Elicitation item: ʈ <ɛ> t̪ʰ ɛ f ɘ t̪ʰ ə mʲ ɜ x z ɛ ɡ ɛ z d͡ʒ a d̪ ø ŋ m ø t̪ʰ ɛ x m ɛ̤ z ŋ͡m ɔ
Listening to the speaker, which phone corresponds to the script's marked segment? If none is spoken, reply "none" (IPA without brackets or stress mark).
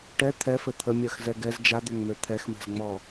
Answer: ɛ